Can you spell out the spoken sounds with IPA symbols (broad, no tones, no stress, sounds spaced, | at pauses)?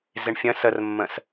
z ɪ ɳ fʲ ə̃ s ə r mː ə̃ s